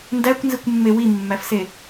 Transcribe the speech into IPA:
ndækʷnzikʷmːe wimːæfse

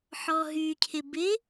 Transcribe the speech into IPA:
ħɔɦycʰɪ bɪ

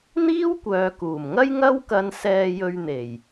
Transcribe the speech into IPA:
n̪iː˥wkʷœː˨kuː˨˩mŋɐ˥j ŋɐ˥wkɐ˧n sɛː˧jɵ˧ɥn̪e˨˩j

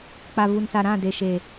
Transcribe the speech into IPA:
k͡pa˨vu˨nsa˨ɾã˦˨ de˨ʃe˨

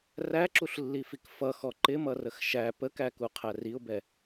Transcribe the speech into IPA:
ræǁuɬlːifik fʌxɔ ǃɪmʌrəx ʃæ pəkæku qʰæriʊ̯bɛ

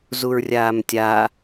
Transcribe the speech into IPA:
zuɹrʲaːmtʲa

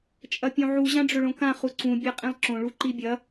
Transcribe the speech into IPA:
t͡ʃʼɐpʲõʕu ʑãɖ͡ʐɵɭõkã χuǀũ bʲaqʼĩlˠǁõ ɭuǃibʲɐ

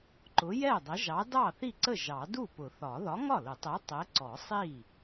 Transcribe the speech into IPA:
ǃʊ˨˥jɛ˥˩dˤə˨˥ ʒɑ˨˥ dɑ˥˩θi˥˩ǀə˥˩ ʒɑ˨˩˦ du˥˩pʊ˨˩˦θɒ˨˩˦ ðɒ˨˥ŋɒ˥˩lʊ˨˩˦tˤɛ˨˥ tˤɛ˨˥ ǀɔ˨˩˦sˤi˥˩

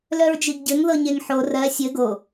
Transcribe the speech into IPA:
lœɹd͡ʒiɡɟɘŋ ðɤɲeŋħo rɜ sʲɘ ɡo

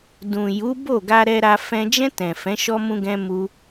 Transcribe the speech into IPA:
dũ˨ju˨˦ bo˦˨ɡa˧ ɾɛ˧ɾa˧ fɛ̃˧ d͡ʒɛ̃˧ tɛ̃˨fɛ̃˨˦ ʃɔ˧mũ˧ɡɛ̃˧mu˧

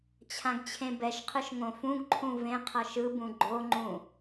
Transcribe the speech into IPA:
t͡ɕʰãɡt͡ɕʰẽbɛʃqʰɯʃ ŋõfũɡǃʰũ vẽ qʰʌʃɯbũ ɡ͡ǃoŋ͡ǃũ

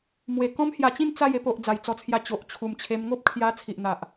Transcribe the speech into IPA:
mwe˨˩kɔ̃˦mhja˧t͡ɕĩ˥˧n t͡sa˥˧je˥˧po˨ʔ d͡za˨˩jt͡sɔ˧t͡sʰja˧ t͡ɕo˨ʔ t͡ɕʰu˨˩mt͡ɕʰe˧m ŋo˦p̚kʰja˧ t͡sʰi˨ʔn̪a˨ʔ

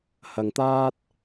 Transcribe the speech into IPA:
hɐ˨ŋt̪aː˥t̚

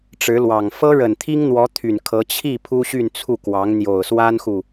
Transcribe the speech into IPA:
ʈ͡ʂɻ̩˧˥lwɑ˨˩ŋ fɤ˥ɻə˨˩nt̪ʰi˥ŋn̪wɔ˧˥ t̪ʰy˨˩nkʰɤ˧˥ t͡ɕʰi˥˩ pʰu˥ɕy˥˧n t͡sʰu˥˩kwɑ˧˥ŋ n̪jo˨˩ʊ̯swa˥nxu˨

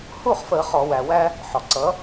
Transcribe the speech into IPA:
hu˥˨χfə˧˩˧ χɔ˧˩˧wæ˩ wæ˦ | ħɔ˩ǀʌ˩˥

